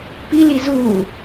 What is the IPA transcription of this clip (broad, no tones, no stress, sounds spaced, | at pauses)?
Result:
p i l i z uː